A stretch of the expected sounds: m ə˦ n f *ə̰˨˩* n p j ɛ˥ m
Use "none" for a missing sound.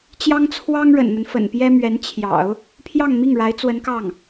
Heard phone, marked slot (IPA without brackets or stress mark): ə̰˨˩